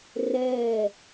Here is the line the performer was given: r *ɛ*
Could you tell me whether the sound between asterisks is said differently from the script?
no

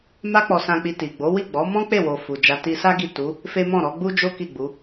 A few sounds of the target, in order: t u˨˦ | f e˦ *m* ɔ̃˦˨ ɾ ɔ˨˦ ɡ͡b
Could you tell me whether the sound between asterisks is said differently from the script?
no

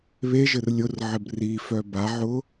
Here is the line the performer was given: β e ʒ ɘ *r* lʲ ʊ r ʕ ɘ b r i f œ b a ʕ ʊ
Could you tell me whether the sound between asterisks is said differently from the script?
no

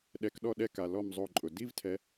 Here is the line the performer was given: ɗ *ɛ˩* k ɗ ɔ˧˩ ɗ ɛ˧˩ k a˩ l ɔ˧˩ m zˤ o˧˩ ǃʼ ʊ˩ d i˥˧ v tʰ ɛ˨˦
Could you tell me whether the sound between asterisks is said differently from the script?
yes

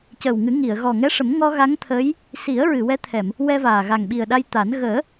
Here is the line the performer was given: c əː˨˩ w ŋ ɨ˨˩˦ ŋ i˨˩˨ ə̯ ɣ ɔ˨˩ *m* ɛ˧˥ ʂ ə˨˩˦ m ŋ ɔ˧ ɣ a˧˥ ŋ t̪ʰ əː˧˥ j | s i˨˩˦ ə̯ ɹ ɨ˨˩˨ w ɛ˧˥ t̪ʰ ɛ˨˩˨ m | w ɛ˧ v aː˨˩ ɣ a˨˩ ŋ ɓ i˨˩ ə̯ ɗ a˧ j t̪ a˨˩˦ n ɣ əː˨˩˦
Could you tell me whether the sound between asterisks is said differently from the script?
yes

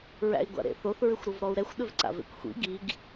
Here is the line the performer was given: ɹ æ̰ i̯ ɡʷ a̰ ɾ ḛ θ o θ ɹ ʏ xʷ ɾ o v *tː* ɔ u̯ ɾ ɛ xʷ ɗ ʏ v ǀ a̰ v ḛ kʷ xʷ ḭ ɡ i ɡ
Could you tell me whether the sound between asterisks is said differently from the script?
yes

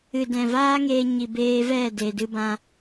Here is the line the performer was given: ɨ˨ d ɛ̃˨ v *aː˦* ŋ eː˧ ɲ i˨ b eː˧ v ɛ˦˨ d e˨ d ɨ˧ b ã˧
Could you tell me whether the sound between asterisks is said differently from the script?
no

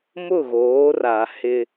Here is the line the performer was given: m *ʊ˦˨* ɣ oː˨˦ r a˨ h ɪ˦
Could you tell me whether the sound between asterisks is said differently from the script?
no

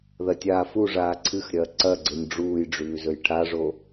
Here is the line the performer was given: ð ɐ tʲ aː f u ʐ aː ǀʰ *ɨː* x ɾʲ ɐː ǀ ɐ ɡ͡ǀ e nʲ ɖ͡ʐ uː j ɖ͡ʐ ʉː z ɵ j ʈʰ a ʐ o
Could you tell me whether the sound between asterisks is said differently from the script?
yes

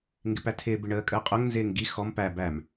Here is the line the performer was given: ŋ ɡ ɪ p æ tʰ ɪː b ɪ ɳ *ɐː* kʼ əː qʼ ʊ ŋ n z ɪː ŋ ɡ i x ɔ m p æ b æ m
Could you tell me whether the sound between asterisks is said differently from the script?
yes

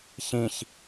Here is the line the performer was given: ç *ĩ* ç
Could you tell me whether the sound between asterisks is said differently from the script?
no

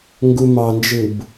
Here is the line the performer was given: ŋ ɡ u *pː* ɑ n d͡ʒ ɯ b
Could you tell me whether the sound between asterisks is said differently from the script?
yes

